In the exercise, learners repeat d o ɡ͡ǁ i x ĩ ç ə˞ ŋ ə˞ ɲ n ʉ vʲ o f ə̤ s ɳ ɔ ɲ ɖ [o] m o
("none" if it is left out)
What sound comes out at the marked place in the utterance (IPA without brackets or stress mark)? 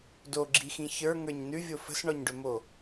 ɵ